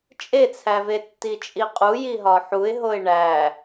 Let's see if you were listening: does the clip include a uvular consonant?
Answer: yes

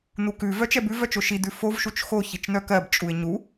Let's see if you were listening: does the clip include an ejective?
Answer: yes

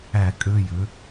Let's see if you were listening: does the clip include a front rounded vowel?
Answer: yes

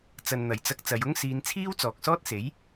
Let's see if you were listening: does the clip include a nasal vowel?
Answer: no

